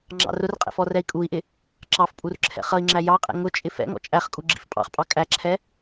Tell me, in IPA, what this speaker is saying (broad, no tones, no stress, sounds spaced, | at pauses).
ŋ͡ǁ ɑ̰ r ʊ r qʼ ɛ̰ f ɔ r ɛ i̯ kʼ u i̯ ʔ ɪ | ǁ ɑ f pʼ u r ǁʰ ɛ̰ χ ʌ i̯ ŋ͡ǁ æ j ɑ qʼ ɛ̰ ŋ ʊ t͡ʃʼ ɪ f ɛ̰ ŋ ɔ̰ t͡ʃʼ æ χ kʼ u ɡ͡ǁ ḭ f pʼ ɑ̰ χ pʼ ɑ kʼ æ ǁʰ ɛ